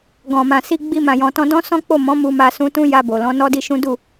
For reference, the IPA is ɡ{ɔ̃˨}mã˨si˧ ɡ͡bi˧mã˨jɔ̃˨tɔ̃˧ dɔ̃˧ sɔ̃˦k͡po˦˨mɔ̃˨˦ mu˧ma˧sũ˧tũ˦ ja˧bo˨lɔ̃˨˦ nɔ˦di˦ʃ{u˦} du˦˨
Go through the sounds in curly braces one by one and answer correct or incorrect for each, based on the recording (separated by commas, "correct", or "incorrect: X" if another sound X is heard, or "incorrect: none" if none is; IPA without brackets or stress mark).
correct, incorrect: ũ˦